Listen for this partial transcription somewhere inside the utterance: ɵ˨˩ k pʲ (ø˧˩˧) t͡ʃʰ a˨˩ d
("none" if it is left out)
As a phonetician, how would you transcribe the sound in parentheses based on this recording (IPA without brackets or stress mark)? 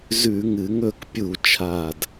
u˧˩˧